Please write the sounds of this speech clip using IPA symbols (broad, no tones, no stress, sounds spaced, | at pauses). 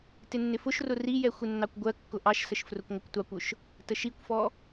t ɪ nː ɪ f ʊ ʃ r ʊ r i j ɛ xʷ ɪ nː ɑ kʷ ɡʷ ɜ kː ʊ ʔ ɑ ʃ s ə ʃ f r ʊ kʷ ŋʷ ɪ kʷ tʷ ɑ kʷ ʊ ʃ | t ə ʃ i kʷ f ɔ